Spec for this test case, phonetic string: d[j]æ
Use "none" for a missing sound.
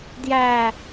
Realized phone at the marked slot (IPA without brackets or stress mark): j